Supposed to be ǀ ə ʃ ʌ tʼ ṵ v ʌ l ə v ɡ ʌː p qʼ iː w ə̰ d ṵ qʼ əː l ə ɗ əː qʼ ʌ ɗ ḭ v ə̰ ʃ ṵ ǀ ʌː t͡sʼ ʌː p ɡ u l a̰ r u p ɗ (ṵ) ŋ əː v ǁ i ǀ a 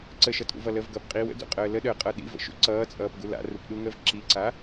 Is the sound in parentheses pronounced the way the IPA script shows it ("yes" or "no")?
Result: no